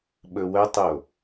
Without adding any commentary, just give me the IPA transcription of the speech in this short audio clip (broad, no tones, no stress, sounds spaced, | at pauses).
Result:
ɓ ɵ w œ tˤ o